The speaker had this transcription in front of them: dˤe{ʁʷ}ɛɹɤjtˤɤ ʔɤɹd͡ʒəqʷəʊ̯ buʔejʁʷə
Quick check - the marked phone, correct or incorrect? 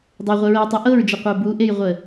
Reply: correct